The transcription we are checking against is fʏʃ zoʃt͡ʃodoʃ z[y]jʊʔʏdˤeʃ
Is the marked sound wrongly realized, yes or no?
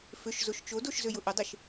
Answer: yes